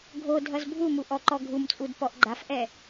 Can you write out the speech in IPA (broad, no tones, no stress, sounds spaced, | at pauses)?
ɡʱ o dʱ ʌ z bʱ u m u ʔ ɔ ǃ ɔ ɡʱ u m t͡sʼ u d p ɔ ʔ ɡ͡ǃ a f ʔ ɛ